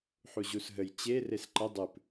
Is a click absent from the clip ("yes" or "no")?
no